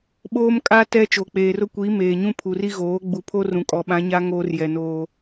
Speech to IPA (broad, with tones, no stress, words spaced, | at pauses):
ɓoː˦mkʼa˦ tɛ˦ t͡ʃo˨k͡peː˨rʊ˦kʷiː˨˦ meː˨ɲũ˦pʰu˨ri˦ ɣoː˨˦ ɡ͡bu˨pʰo˦ rũ˨kʼɔ˨ ɓã˨˦ɲa˦ ŋoː˦rjɛ˨noː˦